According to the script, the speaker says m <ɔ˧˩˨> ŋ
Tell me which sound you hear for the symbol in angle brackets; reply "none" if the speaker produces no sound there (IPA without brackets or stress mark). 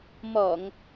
ɔ˧˩˨